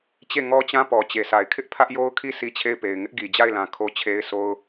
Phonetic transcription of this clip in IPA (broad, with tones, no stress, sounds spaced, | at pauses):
t͡ɕ e˦˨ ŋ ɔ˦ t͡ɕ ã˦ p ɔ˨ t͡ɕ e˨ s a˨ ɪ̯ kʰ ɪ˦ ʔ pʰ ä˦ ʔ j o˦ ʊ̯ kʰ i˦˨ s i˦ t͡ɕʰ e˦˨ ɪ̯ p e˨ ɪ̯ ŋ ɪ˦ ʔ ɡ i˨ d͡ʑ a˦˨ ɪ̯ l ã˨ kʰ o˦ t͡ɕʰ e˦ ɪ̯ sʰ o˦ ʊ̯